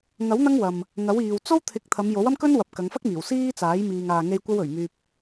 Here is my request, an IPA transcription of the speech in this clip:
ŋɐ˨˥w n̪ɐ˥ŋwɐ˨m | ŋɐ˨˥w iː˨w t͡so˥wt̪ʰɪ˨˥k̚ t̪ʰɐ˨˧mjo˨˥wɐ˥mkɵ˥n wɐ˨p̚kɐ˨˧ŋfɐ˥k̚miː˨˩w siː˥t͡saː˨˥j miː˨ŋaː˨ŋe˧j kʷɐ˥wɵ˨˩ɥmyː˧p̚

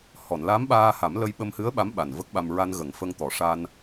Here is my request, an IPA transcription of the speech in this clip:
hɔ˨˩˨nla˧˥mɓaː˧ha˨˩˦m lə˧jɓə˧mhɨ˧˥ə̯ɓa˧˥m ɓa˨˩nvə˦˥k̚ɓa˧m ɹa˧nɣə˨˩˦ŋfə˧ŋt̪ɔ˨˩˦ ʂa˧n

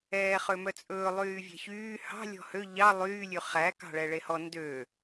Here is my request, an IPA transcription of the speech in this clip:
ɛːχømœt͡sʼɵː lˠyːvʲɛ̤çyː hɑ̤ lʲɔ̤hø ʎɑ lˠyː lʲʉχæ kɑ̤ɭɛɭehɔ ndø

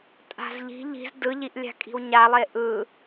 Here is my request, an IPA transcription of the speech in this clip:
tʼa̤zʎi̤ ʎi̤z dɯʎiʔlʲa̤ kʼi̤wɲalˠe ʔɯ

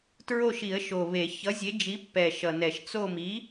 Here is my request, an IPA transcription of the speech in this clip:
tɹo˦˨ʃi˨˩˦ə̯ʃo˨˩ βe˨˩˦ çʌ˨˥zʲe˨˥d͡ʒi˨˥pːɛ˨˩ ʃʌ˨˩nɛ˨˩˦ʃ t͡so˦˨mi˨˥

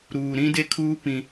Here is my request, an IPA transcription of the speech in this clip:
ɾuː˨ɾĩ˦de˦kʰuː˦ pĩ˦

